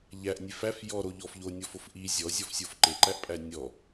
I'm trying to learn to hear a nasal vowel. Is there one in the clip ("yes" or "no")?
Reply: no